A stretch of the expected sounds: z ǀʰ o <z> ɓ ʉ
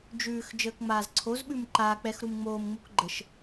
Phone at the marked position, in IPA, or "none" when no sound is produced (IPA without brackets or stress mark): z